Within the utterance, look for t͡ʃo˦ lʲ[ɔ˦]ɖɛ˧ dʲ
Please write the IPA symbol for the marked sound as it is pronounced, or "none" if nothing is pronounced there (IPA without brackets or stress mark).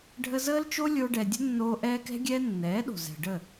o˦